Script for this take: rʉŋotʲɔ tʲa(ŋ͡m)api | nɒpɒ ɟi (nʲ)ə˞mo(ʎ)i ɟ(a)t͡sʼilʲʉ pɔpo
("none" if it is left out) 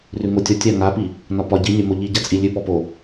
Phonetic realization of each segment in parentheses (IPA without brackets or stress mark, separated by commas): ŋ, nʲ, ʎ, a